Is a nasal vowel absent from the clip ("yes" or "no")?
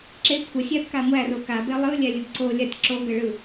yes